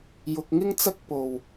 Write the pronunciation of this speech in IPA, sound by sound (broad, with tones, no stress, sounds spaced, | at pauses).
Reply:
j ʊ˧ k̚ ŋ ɪ˥ ŋ t͡s ɐ˥ k̚ p o˨ w